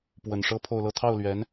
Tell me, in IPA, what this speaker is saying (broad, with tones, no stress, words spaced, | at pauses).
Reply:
pwə˨˩nʂɤ˥ pʰo˥˧ʊ̯lɤ˥˧ t̪ʰɑ˥˩ʊ̯lɥɛ˧˥n